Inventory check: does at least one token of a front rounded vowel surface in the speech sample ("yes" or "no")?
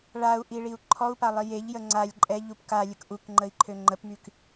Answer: yes